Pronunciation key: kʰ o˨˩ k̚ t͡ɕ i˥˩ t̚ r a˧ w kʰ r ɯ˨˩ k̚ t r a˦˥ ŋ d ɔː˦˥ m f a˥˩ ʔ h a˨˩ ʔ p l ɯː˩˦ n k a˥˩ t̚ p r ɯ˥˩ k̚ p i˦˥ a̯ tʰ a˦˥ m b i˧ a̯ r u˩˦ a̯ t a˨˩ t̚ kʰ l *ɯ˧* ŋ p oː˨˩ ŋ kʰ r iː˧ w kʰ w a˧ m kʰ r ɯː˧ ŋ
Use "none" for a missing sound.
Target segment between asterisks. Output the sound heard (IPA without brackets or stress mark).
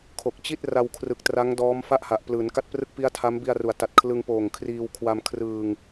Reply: ɯ˧